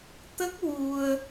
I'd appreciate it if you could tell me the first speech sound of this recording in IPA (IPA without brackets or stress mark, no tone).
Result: t̪